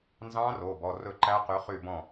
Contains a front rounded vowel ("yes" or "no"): yes